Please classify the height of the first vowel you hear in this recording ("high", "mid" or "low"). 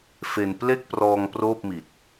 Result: mid